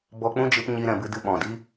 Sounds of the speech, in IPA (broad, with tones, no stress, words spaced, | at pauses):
bɔ˦ k͡pũ˦d͡ʒɨ˧p ɲi˧ɾɛ̃˨bɨ˧ dɨ˧ɓɔ̃˨ di˦